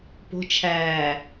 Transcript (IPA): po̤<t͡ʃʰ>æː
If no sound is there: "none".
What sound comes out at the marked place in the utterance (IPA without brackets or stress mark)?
t͡ʃʰ